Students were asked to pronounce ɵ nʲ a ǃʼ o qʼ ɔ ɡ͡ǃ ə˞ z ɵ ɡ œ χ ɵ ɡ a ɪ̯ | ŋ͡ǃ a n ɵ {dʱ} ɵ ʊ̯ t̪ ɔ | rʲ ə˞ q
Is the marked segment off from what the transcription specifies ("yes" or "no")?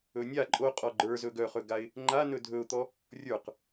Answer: no